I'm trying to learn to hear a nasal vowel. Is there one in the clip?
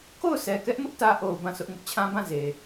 yes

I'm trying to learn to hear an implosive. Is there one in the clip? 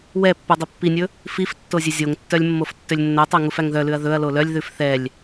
no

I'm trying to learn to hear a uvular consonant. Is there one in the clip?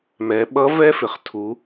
yes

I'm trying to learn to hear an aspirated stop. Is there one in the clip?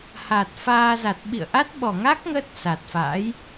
no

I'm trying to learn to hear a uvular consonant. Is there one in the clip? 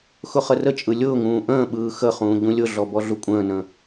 yes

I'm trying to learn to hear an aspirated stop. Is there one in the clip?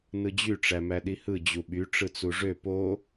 no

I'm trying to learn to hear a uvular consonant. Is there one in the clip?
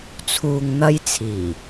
no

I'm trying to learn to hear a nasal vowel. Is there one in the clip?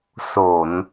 no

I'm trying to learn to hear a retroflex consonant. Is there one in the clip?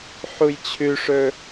yes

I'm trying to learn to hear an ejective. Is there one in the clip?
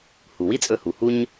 yes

